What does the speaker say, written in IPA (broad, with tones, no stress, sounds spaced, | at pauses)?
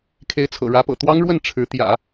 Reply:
kʰ e˧˥ ɪ̯ t͡sʰ ɤ̰˨˩ ɻ ä˧˥ p ɤ̰˨˩ t̪ w ɑ˥ ŋ ɻ w ə˥˩ n ʈ͡ʂʰ ɻ̩˧˥ t̪ j ä̰˨˩˦